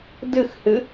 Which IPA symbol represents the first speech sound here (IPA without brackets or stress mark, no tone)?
d